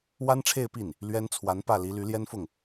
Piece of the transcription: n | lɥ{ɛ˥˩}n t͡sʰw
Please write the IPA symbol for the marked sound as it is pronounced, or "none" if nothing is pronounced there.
ɛ˥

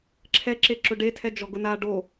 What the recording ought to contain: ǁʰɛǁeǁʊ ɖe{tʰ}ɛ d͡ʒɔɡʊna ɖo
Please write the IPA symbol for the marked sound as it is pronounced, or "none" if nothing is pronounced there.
tʰ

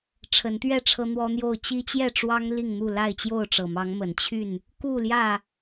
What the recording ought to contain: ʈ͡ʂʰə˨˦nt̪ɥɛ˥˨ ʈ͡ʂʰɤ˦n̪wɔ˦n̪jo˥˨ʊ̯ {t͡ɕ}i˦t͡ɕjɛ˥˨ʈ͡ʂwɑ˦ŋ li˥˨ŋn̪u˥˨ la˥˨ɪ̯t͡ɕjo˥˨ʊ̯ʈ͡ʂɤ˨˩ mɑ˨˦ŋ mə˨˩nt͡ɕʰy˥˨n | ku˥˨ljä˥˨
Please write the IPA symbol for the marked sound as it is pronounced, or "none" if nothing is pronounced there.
t͡ɕ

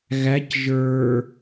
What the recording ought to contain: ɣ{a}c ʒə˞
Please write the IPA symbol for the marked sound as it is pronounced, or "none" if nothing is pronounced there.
æ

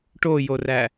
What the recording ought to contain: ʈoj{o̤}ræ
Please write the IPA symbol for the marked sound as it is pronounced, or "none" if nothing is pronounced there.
o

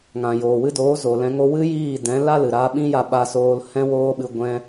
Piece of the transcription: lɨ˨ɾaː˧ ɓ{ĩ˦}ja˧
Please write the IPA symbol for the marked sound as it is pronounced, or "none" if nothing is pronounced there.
ĩ˦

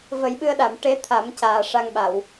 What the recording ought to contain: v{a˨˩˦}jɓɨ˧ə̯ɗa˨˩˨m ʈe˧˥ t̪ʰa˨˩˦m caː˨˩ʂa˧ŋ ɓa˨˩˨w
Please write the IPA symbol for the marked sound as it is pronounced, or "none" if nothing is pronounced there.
ə˨˩˦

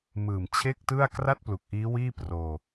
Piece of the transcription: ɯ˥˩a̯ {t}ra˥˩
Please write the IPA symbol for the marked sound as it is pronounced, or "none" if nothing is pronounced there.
k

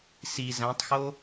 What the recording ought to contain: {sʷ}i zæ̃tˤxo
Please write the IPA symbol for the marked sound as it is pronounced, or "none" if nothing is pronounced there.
s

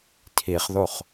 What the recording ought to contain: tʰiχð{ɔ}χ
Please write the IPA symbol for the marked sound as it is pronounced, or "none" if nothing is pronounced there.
o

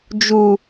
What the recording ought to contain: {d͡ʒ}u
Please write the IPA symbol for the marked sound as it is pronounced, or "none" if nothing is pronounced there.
d͡ʒ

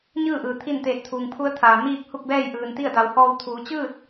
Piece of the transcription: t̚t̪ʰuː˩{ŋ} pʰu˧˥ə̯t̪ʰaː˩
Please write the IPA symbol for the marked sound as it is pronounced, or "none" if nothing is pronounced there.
ŋ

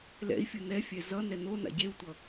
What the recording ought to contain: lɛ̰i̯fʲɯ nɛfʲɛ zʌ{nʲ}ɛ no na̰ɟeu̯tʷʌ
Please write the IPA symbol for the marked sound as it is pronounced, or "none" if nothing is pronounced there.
n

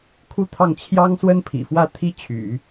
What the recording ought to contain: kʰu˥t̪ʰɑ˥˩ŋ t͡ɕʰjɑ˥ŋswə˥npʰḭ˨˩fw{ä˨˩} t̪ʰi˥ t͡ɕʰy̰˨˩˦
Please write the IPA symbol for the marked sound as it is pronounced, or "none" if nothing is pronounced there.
ä˥˩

